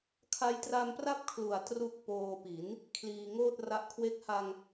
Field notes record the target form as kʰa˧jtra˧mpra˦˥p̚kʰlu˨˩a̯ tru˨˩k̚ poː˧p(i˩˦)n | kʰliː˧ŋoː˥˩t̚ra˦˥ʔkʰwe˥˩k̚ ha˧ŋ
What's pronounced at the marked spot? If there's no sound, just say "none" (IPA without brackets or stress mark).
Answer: i˩˦